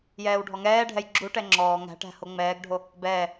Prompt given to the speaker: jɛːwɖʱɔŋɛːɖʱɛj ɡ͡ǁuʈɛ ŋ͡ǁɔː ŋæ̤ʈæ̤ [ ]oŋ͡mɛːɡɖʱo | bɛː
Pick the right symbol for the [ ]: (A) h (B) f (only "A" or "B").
A